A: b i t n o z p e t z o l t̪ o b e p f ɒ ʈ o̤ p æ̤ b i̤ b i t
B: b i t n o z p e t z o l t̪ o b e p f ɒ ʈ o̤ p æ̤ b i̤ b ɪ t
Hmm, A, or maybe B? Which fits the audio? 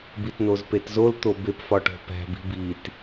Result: A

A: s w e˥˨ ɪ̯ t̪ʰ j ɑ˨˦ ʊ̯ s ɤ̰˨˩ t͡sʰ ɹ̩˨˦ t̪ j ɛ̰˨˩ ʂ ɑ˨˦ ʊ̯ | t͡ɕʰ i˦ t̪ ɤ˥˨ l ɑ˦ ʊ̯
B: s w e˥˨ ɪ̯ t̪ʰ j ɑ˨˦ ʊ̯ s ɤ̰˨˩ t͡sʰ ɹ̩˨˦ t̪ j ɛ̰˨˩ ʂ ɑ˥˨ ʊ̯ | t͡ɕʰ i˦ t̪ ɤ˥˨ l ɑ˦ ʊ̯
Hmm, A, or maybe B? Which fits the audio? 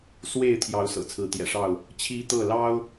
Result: B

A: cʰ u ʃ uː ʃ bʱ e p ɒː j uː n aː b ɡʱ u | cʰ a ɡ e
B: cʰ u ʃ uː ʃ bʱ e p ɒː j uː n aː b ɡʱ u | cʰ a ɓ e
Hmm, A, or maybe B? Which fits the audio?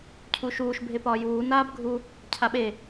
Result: B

